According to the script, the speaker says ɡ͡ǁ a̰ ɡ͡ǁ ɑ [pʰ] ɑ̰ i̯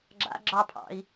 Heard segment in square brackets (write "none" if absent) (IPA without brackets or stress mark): pʰ